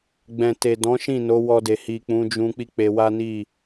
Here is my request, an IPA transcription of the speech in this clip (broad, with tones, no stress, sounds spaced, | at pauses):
ɡ͡b ɛ̃˨ t e˨ d ɔ̃˨˦ ʃ ĩ˦˨ n o˨˦ w ɔ˧ d e˨ h i˨ k͡p ũ˨˦ d͡ʒ ũ˧ k͡p i˦ k͡p e˧ w a˦ n i˦˨